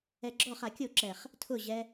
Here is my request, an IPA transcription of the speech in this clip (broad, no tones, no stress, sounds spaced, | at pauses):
ɛ ɡ͡ǁ ɔ χ a kʲ o ǁ ɛ χ | tʰ ʊ ʑ ɛ